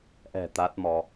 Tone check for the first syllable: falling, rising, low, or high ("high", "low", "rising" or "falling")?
low